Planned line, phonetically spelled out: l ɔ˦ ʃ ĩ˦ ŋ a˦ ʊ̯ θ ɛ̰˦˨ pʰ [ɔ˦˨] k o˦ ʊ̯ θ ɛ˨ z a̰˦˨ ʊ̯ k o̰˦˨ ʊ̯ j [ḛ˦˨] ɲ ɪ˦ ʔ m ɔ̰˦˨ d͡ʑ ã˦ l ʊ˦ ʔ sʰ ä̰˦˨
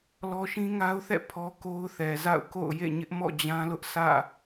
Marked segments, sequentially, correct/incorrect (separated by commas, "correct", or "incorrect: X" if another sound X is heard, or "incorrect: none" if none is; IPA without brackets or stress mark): incorrect: ɔ˦, correct